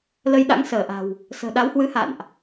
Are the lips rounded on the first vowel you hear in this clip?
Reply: no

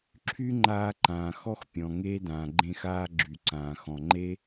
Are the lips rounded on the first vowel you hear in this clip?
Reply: yes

